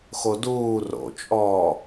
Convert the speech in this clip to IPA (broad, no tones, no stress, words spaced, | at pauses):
xoduː ro̰t͡ʃʼɔː